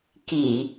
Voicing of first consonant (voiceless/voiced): voiceless